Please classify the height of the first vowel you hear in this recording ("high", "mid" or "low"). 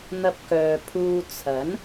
low